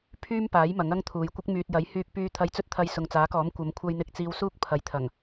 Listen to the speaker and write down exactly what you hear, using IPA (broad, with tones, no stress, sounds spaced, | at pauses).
pʰ yː˥ m p aː˨˥ j m ɐ˨˥ ŋ ɐ˥ ŋ t̪ʰ uː˨ j kʷ ɪ˥ k̚ m yː˨ t̚ j ɐ˨˥ j h yː˧ k̚ p yː˧ t̪ʰ ɐ˧ j t͡s ɵ˥ t̚ t̪ʰ ɐ˧ j s ʊ˨ ŋ t͡s aː˨˥ k ɔː˨˥ m kʷ ɐ˨˧ m kʷʰ ɐ˧ j n̪ ɪ˧ k̚ t͡s iː˧ w s uː˥ k̚ pʰ ɐ˨˥ j t̪ʰ ɐ˨˩ ŋ